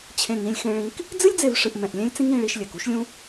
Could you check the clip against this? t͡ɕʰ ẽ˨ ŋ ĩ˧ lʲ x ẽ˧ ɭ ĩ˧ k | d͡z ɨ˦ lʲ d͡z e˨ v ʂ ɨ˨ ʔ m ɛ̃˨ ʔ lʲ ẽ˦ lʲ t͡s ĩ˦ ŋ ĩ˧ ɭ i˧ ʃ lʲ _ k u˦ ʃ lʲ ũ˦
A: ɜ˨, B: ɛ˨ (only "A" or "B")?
B